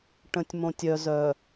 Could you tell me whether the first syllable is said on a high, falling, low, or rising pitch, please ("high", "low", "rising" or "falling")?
low